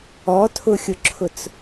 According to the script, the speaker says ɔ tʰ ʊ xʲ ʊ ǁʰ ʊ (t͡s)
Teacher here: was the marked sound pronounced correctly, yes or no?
yes